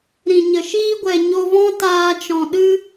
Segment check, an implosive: present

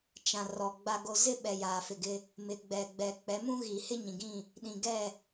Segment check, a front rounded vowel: absent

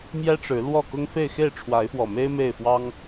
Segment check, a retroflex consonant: present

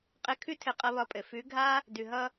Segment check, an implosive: absent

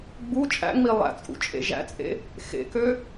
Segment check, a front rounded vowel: present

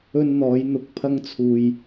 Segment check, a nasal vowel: absent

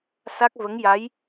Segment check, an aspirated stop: absent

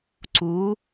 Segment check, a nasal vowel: absent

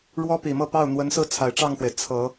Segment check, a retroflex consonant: present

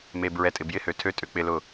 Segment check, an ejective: present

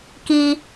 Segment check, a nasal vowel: absent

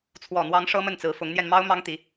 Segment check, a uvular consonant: absent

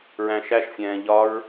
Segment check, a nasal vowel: present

